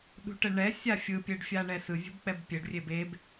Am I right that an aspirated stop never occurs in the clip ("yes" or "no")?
yes